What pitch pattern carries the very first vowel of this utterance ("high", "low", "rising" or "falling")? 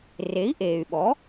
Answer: rising